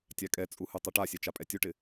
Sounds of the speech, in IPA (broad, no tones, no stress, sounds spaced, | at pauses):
tʲ a kʼ ɛ t͡sʼ u h u tˤ ɛ ʈ a sʲ ɛ t͡ʃ a pʼ ɛ tʲ u ʈ ɪ